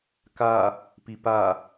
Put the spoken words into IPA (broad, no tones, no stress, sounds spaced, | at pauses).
k a | p i p a